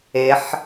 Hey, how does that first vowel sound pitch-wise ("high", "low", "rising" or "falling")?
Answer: rising